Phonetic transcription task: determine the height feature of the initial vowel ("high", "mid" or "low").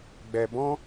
mid